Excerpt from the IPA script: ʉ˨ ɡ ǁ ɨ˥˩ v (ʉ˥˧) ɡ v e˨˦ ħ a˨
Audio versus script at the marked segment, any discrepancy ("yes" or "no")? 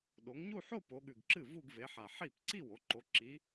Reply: yes